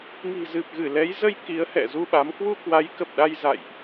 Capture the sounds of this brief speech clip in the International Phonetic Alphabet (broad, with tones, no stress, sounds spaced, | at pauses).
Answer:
ŋ i̤˨˩ z ɨ˨˩ p̚ ɣ ɨ˧˩ l ɛ˨˦ j z ə˧ j k i˨˦ ə̯ h ɛ̰˧˨ z u˧ ɓ a˨˦ m k w u˧ k w a˨˦ j k ə˨˩ p̚ ɗ a˧ j z a̰˧˨ j ʔ